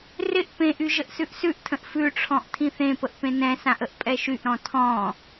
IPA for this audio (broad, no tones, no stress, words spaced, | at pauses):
rɪʔ pẽʔy ʒəʔsʉʔsʉʔtʰə̃ʔ fʉʈ͡ʂʰɔ̃ʔ tʰĩθẽpəʔ pẽnɛ̃sãʔ əʔpʼɛʃyʔɾɔ̃ tʰɔ̃